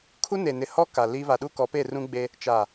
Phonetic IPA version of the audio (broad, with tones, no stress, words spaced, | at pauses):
kʰu˦ne˨nɪ˨hɔ˦ ka˨li˦ βa˨ɗu˦kɔ˨˦pe˦˨ rũ˦ɡ͡be˦ | t͡ʃaː˨